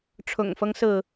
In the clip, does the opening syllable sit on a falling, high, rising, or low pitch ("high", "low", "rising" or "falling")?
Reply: low